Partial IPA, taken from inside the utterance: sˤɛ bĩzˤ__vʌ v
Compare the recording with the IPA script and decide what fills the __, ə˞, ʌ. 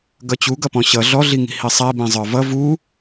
ə˞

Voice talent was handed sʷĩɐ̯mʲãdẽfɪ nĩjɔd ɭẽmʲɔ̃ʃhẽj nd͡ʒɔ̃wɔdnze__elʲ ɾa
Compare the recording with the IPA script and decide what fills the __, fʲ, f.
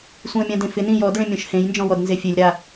fʲ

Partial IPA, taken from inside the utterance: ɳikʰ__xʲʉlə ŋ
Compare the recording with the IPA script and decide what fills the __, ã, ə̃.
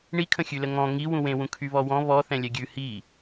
ə̃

